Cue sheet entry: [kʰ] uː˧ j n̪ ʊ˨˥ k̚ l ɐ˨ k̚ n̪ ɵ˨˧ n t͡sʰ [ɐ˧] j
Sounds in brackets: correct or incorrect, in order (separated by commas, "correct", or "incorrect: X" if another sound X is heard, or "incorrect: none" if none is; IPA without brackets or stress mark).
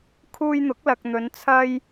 correct, correct